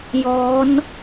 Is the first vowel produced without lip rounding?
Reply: no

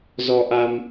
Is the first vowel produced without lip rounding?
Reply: no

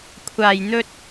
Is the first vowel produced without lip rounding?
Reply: yes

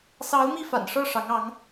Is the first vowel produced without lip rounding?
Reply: yes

